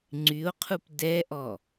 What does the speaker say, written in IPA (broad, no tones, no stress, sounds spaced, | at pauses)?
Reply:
ŋ͡ǀ y o̯ qʰ u p d ɛ ʔ ɔ